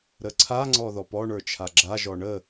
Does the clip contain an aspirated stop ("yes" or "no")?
yes